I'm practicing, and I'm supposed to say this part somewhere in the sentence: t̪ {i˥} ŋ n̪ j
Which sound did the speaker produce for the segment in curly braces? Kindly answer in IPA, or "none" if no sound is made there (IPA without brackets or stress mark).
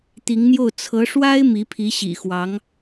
i˧˥